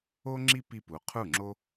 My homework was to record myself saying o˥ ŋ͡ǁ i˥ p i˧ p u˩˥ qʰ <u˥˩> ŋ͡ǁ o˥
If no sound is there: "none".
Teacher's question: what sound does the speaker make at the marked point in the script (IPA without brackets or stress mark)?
u˥˩